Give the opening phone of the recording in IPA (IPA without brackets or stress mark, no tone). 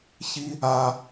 ç